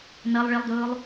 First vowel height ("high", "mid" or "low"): low